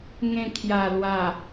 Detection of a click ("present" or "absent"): absent